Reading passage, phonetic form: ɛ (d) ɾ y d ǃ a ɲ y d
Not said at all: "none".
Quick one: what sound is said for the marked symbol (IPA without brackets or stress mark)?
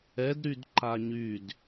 d